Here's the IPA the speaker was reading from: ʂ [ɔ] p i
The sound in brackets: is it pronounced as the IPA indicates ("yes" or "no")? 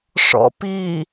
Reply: no